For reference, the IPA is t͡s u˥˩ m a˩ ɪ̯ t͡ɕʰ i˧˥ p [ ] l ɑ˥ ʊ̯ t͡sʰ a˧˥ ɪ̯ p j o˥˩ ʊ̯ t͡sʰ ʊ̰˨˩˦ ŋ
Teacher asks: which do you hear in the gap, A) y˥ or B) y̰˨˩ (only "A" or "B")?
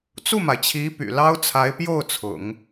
B